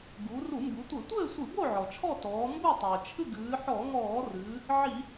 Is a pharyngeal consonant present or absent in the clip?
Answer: present